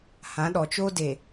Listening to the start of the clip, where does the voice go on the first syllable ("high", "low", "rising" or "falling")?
rising